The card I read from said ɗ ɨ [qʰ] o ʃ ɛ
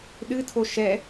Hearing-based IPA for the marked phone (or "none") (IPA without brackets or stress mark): tʰ